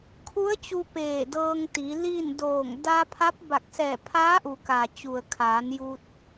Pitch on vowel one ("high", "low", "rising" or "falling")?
rising